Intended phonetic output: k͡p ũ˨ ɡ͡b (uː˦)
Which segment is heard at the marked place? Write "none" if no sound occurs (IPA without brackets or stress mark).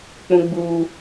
uː˨